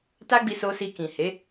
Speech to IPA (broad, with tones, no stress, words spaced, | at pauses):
ta˦ɡ͡bi˧so˧ si˧kĩ˨he˨˦